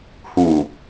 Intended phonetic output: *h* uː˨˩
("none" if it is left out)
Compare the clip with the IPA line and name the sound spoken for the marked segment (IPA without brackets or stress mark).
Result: h